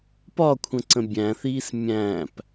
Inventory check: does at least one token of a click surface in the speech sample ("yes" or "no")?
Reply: yes